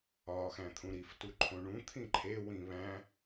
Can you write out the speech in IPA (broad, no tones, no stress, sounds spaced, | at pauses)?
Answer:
ɒ x æ̃ t̪ʰ ũ ɾ i f t u ǃʰ õ ɳ ũ t̪ʰ ĩ ǃʰ e w ĩ β æ̃